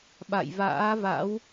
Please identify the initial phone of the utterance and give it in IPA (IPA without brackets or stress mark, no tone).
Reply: ɓ